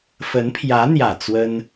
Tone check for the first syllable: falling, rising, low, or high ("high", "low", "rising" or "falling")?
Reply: rising